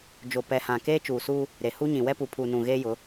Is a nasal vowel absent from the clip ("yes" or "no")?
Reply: no